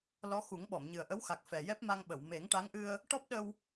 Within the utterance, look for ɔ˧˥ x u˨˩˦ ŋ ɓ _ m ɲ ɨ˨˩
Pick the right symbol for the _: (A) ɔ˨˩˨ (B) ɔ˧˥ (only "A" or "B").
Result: A